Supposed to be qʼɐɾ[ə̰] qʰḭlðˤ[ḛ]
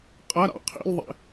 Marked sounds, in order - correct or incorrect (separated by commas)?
incorrect, correct